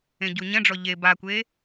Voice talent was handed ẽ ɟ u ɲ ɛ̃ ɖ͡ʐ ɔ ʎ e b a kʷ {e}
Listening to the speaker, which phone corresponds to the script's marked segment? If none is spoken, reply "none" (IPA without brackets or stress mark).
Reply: e